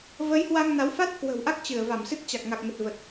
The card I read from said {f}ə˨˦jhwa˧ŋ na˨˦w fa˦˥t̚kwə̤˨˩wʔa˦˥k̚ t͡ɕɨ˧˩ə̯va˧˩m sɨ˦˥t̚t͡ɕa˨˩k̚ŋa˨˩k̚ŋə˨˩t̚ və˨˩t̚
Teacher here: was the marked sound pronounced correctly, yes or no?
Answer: no